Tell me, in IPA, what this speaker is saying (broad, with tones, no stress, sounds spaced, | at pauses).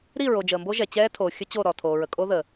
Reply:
ɾ i˦˨ ɹ o˨ d͡ʒ əː˨ m b o˦ ʒ ɛ˨ t͡ɕ ɛː˦ tʰ oː˨ xʲ ə˦ t͡ɕ o˦˨ ɾ ɔ˨ tʰ oː˨ ɹ ə˨ kʼ o˦ ð ə˨